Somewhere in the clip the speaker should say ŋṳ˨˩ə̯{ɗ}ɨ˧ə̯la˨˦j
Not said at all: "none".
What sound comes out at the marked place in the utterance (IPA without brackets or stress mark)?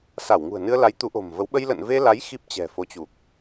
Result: n